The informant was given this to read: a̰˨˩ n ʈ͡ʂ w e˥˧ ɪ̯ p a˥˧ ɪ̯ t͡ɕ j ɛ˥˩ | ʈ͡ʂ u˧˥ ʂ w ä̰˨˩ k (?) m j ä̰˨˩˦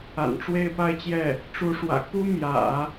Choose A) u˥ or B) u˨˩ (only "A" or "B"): A